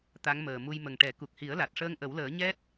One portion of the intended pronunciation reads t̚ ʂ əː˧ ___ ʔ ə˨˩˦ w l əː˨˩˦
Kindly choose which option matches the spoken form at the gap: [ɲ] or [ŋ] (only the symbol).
ŋ